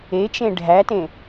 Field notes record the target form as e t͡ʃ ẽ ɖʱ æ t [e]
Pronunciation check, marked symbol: incorrect: ẽ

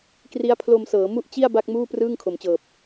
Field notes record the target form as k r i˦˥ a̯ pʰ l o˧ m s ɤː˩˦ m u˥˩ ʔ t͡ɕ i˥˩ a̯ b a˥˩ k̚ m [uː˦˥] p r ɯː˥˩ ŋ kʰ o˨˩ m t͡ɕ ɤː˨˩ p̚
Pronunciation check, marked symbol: incorrect: uː˥˩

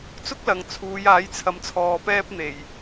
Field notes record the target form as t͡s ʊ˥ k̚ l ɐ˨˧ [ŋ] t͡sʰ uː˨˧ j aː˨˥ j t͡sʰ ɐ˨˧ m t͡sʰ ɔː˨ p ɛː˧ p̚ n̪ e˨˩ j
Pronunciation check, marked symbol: correct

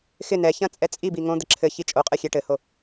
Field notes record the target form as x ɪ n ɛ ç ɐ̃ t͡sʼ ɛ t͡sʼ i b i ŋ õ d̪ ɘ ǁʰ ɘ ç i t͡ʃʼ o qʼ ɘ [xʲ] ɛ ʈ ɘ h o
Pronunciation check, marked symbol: correct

